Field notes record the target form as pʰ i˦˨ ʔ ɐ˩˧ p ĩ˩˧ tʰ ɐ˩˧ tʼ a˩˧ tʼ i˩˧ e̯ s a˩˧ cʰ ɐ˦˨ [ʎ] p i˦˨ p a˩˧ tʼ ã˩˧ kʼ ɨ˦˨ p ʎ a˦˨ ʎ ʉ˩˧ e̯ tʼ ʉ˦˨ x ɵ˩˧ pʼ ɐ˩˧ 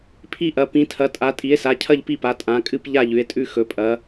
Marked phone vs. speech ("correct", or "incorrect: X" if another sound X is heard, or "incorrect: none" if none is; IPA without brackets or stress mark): correct